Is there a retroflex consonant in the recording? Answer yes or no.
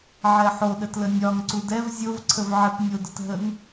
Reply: no